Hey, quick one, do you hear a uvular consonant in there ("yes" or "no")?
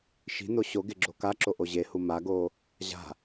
no